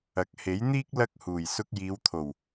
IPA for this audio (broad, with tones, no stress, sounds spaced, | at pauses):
ɐ˨˥ k̚ h e˨˥ j n̪ iː˥ k̚ l ɐ˥ k̚ h uː˨˩ j s ʊ˧ k̚ j iː˨˧ w t̪ʰ o˨˩ w